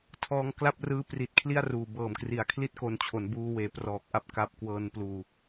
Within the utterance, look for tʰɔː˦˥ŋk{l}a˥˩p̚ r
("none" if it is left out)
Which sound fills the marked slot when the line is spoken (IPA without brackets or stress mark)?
l